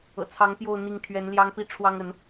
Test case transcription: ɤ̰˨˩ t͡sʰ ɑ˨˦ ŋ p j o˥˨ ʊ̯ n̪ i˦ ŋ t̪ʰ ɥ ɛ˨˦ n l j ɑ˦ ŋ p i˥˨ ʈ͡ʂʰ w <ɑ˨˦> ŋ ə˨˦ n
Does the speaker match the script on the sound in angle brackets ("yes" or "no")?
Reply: no